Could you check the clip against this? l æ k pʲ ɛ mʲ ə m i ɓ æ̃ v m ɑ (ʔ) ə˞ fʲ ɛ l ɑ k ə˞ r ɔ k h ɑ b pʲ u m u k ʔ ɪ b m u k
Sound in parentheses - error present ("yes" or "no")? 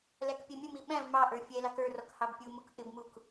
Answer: no